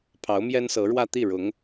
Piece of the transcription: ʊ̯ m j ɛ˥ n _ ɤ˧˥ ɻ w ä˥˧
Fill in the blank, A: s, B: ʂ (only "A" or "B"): A